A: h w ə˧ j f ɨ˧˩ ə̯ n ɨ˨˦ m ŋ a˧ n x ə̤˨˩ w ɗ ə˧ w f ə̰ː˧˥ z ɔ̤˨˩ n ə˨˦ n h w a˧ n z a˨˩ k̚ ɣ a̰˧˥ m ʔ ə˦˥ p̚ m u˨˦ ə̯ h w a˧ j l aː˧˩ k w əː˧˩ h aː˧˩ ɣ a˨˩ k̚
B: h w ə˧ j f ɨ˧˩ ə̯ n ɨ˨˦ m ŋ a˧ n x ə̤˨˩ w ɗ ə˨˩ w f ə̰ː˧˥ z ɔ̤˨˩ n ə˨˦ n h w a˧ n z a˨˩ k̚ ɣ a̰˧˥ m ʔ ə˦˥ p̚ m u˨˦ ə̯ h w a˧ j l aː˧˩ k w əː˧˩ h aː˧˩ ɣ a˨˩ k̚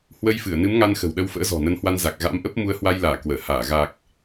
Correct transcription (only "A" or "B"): A